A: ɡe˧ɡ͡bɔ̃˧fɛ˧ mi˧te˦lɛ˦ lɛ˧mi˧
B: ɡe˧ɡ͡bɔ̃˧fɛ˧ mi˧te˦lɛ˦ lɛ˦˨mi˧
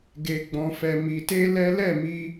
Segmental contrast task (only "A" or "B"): B